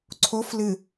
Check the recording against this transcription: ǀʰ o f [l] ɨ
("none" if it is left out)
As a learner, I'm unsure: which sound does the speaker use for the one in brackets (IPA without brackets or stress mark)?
l